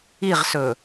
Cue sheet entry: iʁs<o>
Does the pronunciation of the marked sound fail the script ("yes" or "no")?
yes